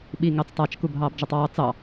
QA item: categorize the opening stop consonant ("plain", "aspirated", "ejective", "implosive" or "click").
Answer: implosive